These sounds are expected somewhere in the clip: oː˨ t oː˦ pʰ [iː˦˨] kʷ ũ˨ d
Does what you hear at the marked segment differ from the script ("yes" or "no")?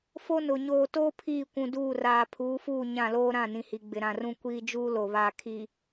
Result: no